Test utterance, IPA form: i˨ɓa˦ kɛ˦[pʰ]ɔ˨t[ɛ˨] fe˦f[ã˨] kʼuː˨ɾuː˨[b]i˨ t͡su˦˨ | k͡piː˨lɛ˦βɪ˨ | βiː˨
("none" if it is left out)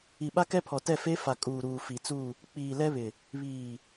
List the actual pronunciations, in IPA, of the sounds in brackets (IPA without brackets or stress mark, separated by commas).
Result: pʰ, ɛ˦˨, a˨, f